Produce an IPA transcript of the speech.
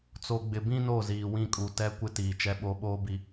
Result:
t͡s o˨ ɡ͡b ɪ˨ b ĩ˦ n o˦˨ z iː˨ w ĩ˦˨ kʼ u˨ t ɛ˦ kʷ ɪ˦ t iː˨ t͡ʃ ɛ˦ ɓ o˦ ɓ oː˦ b i˨

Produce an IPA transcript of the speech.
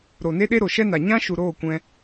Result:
ɾ o˨ n e˦ ɗ e˦ ɾ o˨ ʃ ɛ˦ n a˨ ɲ ã˦ ʃ u˨ ɾ oː˦˨ kʷ ɛ̃˧

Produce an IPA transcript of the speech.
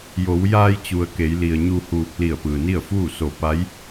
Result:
j o˩˧ w j aː˧ j t͡ɕ u˩ ə̯ k e˩˧ j l i˩ ə̯ ɲ u˧ h uː˧ k̚ l i˧˩ ə̯ p ɯː˩ n i˥˨ ə̯ f uː˥˨ s o˧˩ p a˧˥ j

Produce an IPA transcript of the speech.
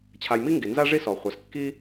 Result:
t͡ɕʰ a˨ j m i˥ ŋ ɡ i˩ n z a˥ ʐ i˥ s ɔ˩ χʷ a˩ s kː i˥

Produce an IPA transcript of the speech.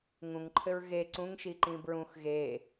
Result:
ŋ ũ ŋ ǃʰ ɘ ɹ ɣ e ǀ ũ ŋ ʃ i ǃ ĩ b ɹ ũ x ɣ e

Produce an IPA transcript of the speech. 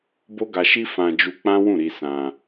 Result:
b o˦ ɡ a˧ ʃ i˦ f ã˧ d͡ʒ u˧ k͡p ã˦ w ũ˦˨ ɾ i˧ s ã˧

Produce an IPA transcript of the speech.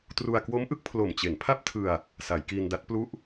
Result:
t r u˧ a̯ k w o˦˥ m ʔ ɯ˦˥ k̚ pʰ l o˨˩ m t͡ɕ e˩˦ n pʰ a˥˩ p̚ tʰ ɯ˧ a̯ | s a˩˦ j k iː˧ n d a˦˥ t̚ p l u˥˩ ʔ

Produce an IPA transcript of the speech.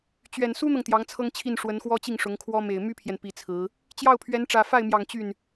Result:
t͡ɕ ɥ ɛ˨˩ n s u˥ n̪ ɤ˨ ŋ t̪ j ɑ˧˥ ŋ t͡sʰ ɤ˥ ŋ t͡ɕʰ i˥˩ n ʂ w ə˧˥ n x w ɔ˥ t͡ɕ i˥˩ ŋ ʂ ʊ˧˥ ŋ kʰ w ɔ˥ m e˨˩ ɪ̯ m y˥ pʰ j ɛ˨ n p i˧˥ t͡sʰ ɹ̩˧˥ | t͡ɕ j ɑ˥˩ ʊ̯ pʰ ɥ ɛ˧˥ n ʈ͡ʂ ä˨˩ f a˥˩ ɪ̯ m j ɑ˨˩ ŋ t͡ɕ y˥˩ n

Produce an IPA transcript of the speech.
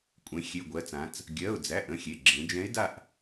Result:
kʷʼ ẽ˩˧ xʲ e˩˧˩ ɡʷ ɜ˩˧ t͡s ã˩˧ t͡s | ɡʲ ɜ˩˧˩ ʊ̯ d͡z æ˩˧˩ ʔ ə̃˥˨ xʲ e˩˧˩ ɡ͡ǁ ẽ˩˧ d͡ʒ ɛ̃˧˥ ɪ̯ d a˥˨ ʔ

